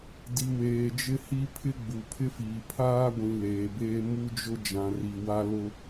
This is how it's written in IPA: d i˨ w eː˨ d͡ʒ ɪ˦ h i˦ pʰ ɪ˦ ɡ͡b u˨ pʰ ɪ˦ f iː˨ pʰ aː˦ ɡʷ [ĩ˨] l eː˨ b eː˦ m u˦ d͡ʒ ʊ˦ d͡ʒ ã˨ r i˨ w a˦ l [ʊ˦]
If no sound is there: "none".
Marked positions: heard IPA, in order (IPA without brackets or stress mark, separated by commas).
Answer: ĩ˨, ʊ˦